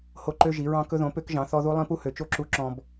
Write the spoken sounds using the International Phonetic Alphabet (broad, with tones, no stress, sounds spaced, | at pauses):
h o˦ ǃ ø˦ ʒ i˨˦ ɹ ɑ̃˦ k ɵ˦ ð õ˨˦ p ø˦ k ʒ ɑ̃˨˦ θ ɔ˦ ð u˦ lˠ ĩ˦ p u˦ h ø˨˦ t͡ʃ o˦ ǁ u˦ ǁ ɔ̃˦ b